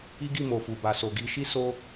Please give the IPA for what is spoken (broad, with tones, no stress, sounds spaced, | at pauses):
i˦ ɡ i˦˨ m o˨ f u˨ b a˨ s o˨ ɡ i˨˦ ʃ i˦ s o˦